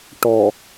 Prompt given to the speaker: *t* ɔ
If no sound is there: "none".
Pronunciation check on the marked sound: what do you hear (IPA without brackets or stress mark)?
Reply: ʈ